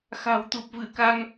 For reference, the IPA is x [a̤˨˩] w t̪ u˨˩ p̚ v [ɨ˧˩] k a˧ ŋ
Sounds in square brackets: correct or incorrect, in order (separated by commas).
correct, correct